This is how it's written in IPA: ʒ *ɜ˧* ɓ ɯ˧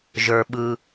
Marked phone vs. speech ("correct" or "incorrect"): incorrect